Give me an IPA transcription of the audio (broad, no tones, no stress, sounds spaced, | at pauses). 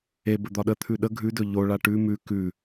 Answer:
e b ə d̪ ɒ ɗ ə t̪ʰ ʉ ɗ ə ɡʱ ʉ d ɵ ʎ o ɭ a ʈ ʉ m ʉ k ʉ